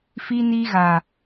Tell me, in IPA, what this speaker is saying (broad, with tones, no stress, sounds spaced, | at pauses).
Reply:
f i˦ n i˦ ɣ a˨